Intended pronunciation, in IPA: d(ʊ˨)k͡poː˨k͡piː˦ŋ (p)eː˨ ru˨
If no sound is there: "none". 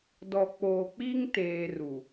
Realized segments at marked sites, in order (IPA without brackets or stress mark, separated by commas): ɔ˨, t